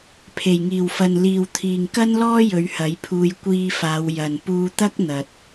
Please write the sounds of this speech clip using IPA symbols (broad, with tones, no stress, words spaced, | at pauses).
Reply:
pʰe˨˩jŋiː˨˩wfɐ˨n liː˨wt̪ʰiː˨ŋkɐ˥nlɔː˥ jɵ˨˧ɥhɐ˨˥jpʰuː˧j kʷiː˧faː˨˧w jɐ˨n puː˧t̪ɐ˥k̚ n̪ɐ˨t̚